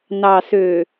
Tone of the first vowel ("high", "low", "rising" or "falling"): low